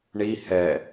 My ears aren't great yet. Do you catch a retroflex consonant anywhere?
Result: yes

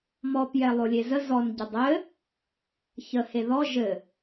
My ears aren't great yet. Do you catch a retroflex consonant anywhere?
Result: no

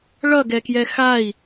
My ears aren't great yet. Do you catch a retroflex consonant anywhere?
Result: yes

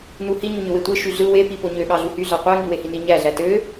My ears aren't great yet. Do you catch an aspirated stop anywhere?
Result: no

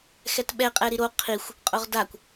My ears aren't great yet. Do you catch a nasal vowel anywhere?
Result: no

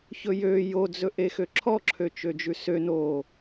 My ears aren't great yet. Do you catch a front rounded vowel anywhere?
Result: yes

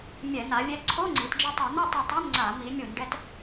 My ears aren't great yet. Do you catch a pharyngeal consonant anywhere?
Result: no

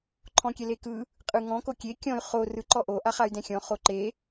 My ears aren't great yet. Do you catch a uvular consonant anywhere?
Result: yes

